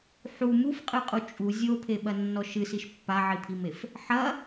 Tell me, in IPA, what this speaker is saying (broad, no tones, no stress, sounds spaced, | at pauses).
ħ u m u f qʼ ɨ qʼ u t͡ʃʼ u zʲ o pʰ e ɓ ɐ nː ɔ ʃ ɨ s i ʃ pː a ʕ i pʰ i m e f | ħ ɐ